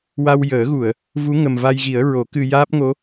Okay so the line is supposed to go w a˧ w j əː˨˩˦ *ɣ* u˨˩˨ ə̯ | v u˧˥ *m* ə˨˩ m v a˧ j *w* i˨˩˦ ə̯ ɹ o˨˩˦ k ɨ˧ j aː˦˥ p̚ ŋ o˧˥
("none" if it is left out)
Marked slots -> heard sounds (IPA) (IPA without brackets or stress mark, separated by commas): ɣ, ŋ, ɣ